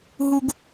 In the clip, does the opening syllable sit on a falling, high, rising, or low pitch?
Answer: high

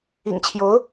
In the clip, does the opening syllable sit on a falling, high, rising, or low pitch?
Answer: low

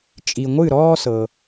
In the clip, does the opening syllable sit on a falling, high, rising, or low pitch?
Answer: low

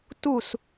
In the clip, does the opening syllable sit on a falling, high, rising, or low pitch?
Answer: falling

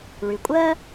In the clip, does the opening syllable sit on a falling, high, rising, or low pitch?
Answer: low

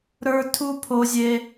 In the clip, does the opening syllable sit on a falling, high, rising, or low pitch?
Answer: high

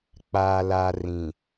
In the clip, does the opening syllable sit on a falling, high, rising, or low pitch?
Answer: low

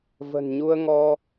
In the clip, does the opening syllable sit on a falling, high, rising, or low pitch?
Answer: low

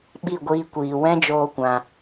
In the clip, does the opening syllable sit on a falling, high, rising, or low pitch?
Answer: falling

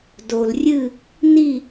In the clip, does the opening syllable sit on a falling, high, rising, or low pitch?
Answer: low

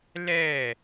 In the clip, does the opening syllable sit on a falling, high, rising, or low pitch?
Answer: falling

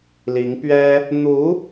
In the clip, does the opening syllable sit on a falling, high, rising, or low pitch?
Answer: rising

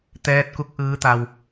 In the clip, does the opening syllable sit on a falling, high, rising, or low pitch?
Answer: rising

